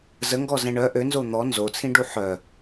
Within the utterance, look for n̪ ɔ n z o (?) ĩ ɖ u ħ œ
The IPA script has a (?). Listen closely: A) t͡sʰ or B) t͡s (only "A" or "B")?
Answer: A